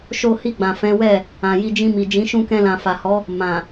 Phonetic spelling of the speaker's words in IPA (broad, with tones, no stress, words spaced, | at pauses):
ʃo˧hi˧ɡ͡bã˨ fɛ̃˨˦wɛ˦˨ | ã˨ ji˧d͡ʒĩ˧mi˨ d͡ʒĩ˨˦ʃũ˧kɛ̃˧lã˨ fa˨hɔ˨˦ | mã˨